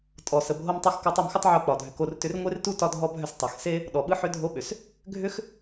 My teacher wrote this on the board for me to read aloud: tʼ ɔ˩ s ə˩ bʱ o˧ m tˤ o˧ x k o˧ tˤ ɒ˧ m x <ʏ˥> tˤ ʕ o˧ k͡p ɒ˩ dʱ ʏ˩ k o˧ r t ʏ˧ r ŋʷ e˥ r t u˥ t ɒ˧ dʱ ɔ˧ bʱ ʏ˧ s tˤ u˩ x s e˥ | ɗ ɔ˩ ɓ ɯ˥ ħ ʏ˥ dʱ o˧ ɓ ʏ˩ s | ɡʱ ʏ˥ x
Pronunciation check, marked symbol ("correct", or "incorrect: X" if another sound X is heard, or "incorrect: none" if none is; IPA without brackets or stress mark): correct